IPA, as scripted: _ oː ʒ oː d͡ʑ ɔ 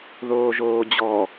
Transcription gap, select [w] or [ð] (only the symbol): ð